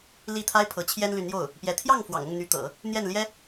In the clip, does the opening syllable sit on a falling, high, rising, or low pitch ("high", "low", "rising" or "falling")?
falling